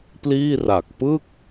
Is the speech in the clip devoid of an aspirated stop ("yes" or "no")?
yes